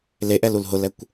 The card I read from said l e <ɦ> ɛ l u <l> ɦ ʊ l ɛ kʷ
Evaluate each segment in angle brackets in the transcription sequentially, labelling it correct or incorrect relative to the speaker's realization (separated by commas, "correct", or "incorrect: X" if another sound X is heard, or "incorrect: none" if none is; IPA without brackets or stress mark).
incorrect: ʔ, correct